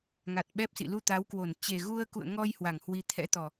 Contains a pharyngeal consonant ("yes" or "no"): no